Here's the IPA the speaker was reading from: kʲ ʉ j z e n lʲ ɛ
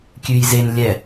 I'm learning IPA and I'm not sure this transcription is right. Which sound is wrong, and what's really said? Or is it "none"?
none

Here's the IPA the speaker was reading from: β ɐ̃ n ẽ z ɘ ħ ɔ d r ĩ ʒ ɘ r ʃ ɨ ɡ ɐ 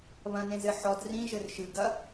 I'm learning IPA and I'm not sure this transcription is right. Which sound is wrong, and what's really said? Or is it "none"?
none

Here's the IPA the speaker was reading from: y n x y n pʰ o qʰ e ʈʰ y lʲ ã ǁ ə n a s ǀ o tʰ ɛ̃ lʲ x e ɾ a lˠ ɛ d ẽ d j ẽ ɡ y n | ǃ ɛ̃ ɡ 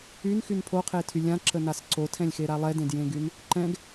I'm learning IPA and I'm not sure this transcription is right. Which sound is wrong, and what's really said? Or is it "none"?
ʈʰ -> tʰ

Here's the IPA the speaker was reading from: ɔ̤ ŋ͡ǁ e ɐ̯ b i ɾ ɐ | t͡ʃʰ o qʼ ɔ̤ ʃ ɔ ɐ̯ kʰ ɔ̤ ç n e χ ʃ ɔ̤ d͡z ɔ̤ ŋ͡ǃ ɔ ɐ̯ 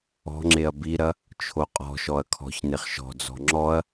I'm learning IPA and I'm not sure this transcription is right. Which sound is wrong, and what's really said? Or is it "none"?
ŋ͡ǃ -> ŋ͡ǁ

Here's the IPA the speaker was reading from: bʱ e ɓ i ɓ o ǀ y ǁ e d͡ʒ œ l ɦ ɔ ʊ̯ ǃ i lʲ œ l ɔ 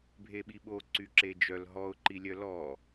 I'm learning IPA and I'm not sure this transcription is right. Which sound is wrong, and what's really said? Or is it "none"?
none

